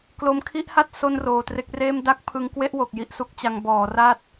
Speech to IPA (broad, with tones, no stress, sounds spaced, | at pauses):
k l o˧ m kʰ i˥˩ ʔ h a˥˩ t̚ s o˥˩ n r oː˨˩ t r e˦˥ k̚ r eː˥˩ m d a˥˩ k̚ pʰ ɯ˧ ŋ k w e˥˩ ʔ w o˨˩ k̚ j i˦˥ ʔ s u˦˥ k̚ t͡ɕ a˧ ŋ b ɔː˩˦ r a˥˩ t̚